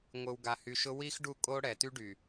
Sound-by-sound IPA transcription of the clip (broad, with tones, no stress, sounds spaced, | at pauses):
ŋʷ ɨ˨ w ɡ a˨ h y˨ ʃ ʊ˦ w i˦ x ɖ u˦˨ kʼ o˦ ɽ ɛ˨ t y˦ ɖ y˨